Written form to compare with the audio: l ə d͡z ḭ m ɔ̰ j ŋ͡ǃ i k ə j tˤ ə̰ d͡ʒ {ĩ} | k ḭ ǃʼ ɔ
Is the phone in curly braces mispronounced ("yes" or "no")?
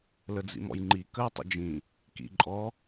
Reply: no